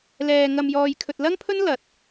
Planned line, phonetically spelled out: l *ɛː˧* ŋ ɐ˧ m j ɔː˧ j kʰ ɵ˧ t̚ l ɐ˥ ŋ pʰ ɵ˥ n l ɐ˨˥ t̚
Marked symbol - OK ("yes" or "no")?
yes